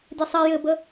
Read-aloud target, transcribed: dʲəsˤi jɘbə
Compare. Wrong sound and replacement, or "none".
none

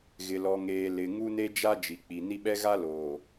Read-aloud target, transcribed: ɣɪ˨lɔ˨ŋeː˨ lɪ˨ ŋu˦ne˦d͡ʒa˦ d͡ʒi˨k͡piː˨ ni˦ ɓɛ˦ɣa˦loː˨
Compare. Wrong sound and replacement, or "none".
iː˨ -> i˨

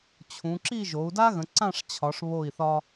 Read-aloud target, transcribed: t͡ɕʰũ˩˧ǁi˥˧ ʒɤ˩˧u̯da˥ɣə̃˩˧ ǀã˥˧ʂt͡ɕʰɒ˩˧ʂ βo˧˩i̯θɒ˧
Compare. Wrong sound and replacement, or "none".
ɤ˩˧ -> o˩˧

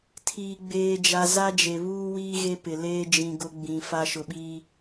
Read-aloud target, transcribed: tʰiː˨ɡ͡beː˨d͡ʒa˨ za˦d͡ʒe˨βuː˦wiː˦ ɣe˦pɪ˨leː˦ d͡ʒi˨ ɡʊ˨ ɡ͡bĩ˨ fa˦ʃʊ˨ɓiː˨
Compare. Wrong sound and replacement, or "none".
i˨ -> ĩ˨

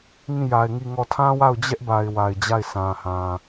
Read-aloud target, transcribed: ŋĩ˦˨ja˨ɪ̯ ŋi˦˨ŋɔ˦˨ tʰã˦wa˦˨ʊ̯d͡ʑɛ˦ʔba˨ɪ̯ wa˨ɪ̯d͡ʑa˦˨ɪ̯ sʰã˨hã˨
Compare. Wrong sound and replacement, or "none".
none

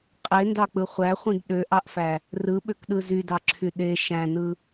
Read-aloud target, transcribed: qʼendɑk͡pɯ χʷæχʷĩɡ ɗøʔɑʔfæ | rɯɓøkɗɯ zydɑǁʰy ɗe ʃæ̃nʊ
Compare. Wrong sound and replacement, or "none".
ʊ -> ɯ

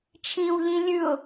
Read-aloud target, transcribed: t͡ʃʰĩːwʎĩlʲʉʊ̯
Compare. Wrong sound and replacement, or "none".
none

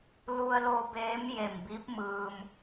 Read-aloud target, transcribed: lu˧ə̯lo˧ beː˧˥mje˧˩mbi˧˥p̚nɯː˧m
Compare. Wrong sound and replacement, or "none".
n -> m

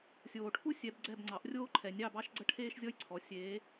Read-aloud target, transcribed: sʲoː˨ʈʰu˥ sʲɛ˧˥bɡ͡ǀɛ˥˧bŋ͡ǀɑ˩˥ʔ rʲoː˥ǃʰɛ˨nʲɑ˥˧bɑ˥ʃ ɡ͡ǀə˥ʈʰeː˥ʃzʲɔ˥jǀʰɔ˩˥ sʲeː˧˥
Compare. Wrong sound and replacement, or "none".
none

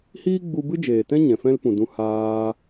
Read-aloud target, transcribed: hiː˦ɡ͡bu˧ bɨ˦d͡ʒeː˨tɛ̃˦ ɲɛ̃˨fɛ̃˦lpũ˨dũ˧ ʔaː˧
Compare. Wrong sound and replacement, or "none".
ʔ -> h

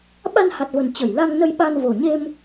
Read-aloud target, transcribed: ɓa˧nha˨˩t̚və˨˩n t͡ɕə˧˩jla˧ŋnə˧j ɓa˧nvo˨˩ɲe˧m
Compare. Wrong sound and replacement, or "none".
none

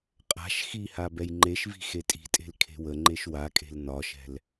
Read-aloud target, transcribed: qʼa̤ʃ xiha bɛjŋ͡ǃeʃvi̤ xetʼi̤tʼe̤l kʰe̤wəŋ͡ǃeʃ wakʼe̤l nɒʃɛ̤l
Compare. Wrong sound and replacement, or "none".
none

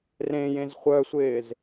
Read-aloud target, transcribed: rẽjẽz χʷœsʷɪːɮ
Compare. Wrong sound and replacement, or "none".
ɮ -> z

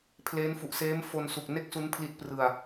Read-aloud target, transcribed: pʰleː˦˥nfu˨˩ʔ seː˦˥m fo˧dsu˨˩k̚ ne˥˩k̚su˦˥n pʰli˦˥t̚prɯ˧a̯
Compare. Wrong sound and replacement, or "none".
d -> n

